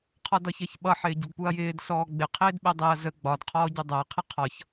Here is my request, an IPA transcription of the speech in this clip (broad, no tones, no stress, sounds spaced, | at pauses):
qʰ ɒ d ɒ ç ɜ ç ɓ ʌ ħ ɪː ɟ ə d p u ɐ̯ j ɪː d s ɔː ɡ͡b ɪ qʰ ɪː d ɓ ɛ dˤ ɛ ɐ̯ z ə ɡ͡b ɒ d qʰ ɔː ɟ u dˤ æ qʰ ɪ qʰ ɒ ç